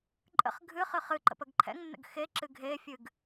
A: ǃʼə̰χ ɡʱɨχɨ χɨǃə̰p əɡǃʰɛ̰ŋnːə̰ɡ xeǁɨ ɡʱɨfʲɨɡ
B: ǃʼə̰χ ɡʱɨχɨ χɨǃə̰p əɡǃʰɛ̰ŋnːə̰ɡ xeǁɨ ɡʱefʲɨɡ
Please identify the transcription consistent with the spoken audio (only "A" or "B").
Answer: B